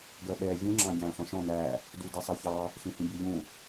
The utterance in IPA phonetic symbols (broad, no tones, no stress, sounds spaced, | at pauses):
ɡ ɜ ɓ ɛ vʲ ũ ŋ͡ǁ ɑ̃ ɟ æ̃ː ɬ ɔ̃ ʃ ɔ̃ n æ | d u d i sˤ ɜ ç ɑ | ɬ ĩ h ĩ bʲ ɜ ʎ ũ